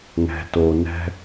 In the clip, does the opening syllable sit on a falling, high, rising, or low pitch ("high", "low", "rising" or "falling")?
low